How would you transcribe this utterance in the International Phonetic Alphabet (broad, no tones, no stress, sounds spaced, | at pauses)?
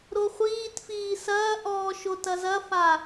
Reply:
ɾ o χʷ iː t f iː s ɐː ʔ ɔː ʃ o t ɐ z ɐ f a